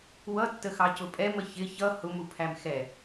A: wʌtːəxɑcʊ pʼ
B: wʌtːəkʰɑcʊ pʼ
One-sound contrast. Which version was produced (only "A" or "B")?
A